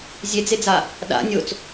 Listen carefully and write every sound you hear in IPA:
zʲ e d͡z e d͡z a | ɗ a̰ nʲ o t͡s

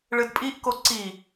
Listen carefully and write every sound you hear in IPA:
ɭ ɨ d pʼ i ʔ k o ǀ i

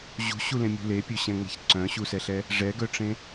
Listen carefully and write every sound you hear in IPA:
ʑ ṳ ɕ u l ẽ mʲ ṳ l e pʲ ɵ ɕ ɛ̃ ŋ͡m ɛ̤ ç ǀ œ̃ ɕ u s ɛ ɬ ɛ | ʐ ɛ ɡ œ ʈ͡ʂ ẽ

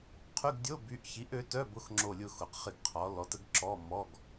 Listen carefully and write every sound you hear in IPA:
qʰ y˧˥˧ ɡ dʲ o˧˥˧ b y˨˥ ʔ ç i˨˥ ʔ ø˨˥ t œ˧˥˧ b ʊ˧˥˧ x ŋ͡ǁ o˦˨ lʲ ʊ˦˨ x ʊ˨˥ q χ ɪ˦˨ ɡ qʰ ɔ˨˥ l ɔ˨˥ t ə˨˥ ɡ ǁ ɔ˧˥˧ m ɔ˧˥˧ ɡ

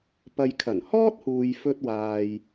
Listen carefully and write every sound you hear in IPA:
p ɐ˨ j kʰ ɐ˨˩ n h ɔː˥ t̚ h uː˨ j f ɵ˧ t̚ w aː˨ j

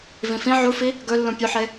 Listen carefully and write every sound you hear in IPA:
v ĩ f ĩ ʕ u f i | ɡ ɵ lː ũ pʲ ʉ ħ e

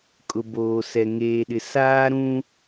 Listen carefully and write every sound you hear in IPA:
kʼ ʊ˨ b oː˨ s ɛ˨ ŋ eː˨ ɗ ɪ˨ s aː˦ ɾ ũ˦

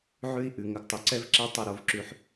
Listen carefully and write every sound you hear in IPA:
ʕ ʉ˦ i̯ ʔ ʉ˨ ŋ ə˨ ɡ tˤ ɪ˨ ǀ ɛ˦ v ǁ ɛ˦ tˤ ə˦˨ ɾ o˦ v ǁ ʉ˦ ħ

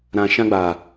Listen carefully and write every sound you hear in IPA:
ɾ ã˨ ʃ ã˧ ɡ͡b a˨

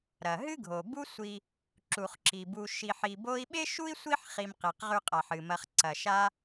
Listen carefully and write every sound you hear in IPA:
ɾ ɐ˩ ɦ ɨ˥ ɡʱ o˩ b u˦ sʷ i˨ | ǁ u˩ χ ǁ i˩ b u˨ ʃ i˨ ħ i˨ b o˦ i̯ ɓ e˥ ʃ u˥ i̯ sʷ i˥ ħ χ i˨ m q e˩ q ʁ ʉ˨ qʼ a˩ ħ ɨ˩ m ɐ˨ χ ǀ ɐ˩ ʃ a˦

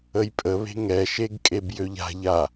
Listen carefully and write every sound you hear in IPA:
ə j pʼ ə β e̤ ŋ ɛ ʃ e ɡ kʼ e b j ø ʎ a̤ ʎ a

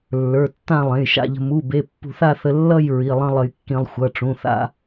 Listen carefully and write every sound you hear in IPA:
lː ə˞˩˧˩ tː ã˥˧ lˠ ẽ˩˧˩ j ʃ a̰˥˧ ʎ ə̤˧ m u˩˧˩ b e˩˧˩ pː ṳ˧ θ a˥˧ θ ə˧ lː ʌ˥˧ j ɹ i˩˧˩ lˠ ə̃˥˧ lˠ ə˧ j kː ĩ˧ lˠ xʷ ʌ˩˧˩ ʈ͡ʂ ũ˩˧˩ θ a̰˥˧

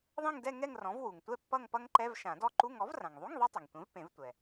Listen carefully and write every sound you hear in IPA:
ðˤ ẽ˥˧ ŋ d ɛ˥˧ ŋ ɛ˥˧ ŋ r ɔ̃˩˥ v w u˩ ŋ tʷ ɛ˥˧ pː ʌ˥˧ ŋ p ʌ˦˥ ŋ ǃ ɛ˧˥˧ v ʃ ã˨˩˦ d ɔ˦˥ ǃ u˧˥˧ ŋ ɔ˩˥ v r ã˩ ŋ ðˤ u˧˥˧ ŋ ðˤ ɛ˦˥ tˤ ʌ˩ ŋ tʷ ẽ˩˥ v p ẽ˨˩˦ v tʷ ɛ˩

